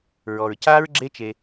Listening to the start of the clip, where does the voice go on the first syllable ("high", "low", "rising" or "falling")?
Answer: low